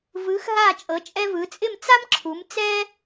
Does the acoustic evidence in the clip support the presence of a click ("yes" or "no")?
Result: yes